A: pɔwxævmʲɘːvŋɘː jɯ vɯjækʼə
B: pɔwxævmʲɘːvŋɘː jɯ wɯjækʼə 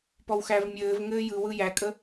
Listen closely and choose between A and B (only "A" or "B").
B